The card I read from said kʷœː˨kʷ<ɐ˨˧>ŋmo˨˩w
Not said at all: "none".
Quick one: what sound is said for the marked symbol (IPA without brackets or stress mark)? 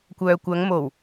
ɐ˨˧